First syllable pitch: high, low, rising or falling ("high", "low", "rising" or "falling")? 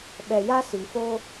low